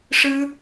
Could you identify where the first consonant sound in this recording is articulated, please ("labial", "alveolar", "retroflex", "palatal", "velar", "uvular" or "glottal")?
retroflex